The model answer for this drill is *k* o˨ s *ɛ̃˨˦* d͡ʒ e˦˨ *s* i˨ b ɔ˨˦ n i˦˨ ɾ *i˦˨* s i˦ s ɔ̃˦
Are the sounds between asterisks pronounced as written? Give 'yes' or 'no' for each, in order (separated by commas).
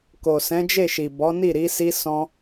yes, yes, no, no